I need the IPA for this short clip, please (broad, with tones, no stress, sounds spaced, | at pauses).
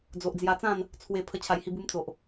d͡z o˨ ʔ d͡z j a˧ t͡s ã˥˧ n | t͡sʰ w e˨˩ pʰ ə˧ t͡ɕʰ a˨˩ j h i˧ b u˧ m t͡s o˨ ʔ